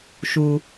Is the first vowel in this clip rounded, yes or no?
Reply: yes